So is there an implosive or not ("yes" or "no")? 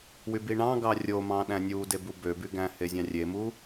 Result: yes